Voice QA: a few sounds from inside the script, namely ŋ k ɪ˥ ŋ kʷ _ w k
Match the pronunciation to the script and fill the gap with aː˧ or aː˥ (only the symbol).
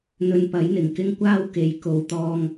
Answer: aː˥